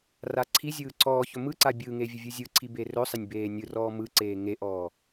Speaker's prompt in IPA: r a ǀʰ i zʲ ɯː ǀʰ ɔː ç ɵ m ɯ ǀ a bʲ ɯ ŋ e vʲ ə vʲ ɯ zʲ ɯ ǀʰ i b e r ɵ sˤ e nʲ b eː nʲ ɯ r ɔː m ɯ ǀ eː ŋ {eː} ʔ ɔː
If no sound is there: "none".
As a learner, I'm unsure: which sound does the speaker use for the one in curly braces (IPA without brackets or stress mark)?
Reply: e